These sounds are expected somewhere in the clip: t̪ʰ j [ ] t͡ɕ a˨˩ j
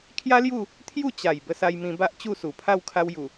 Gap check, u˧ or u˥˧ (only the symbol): u˥˧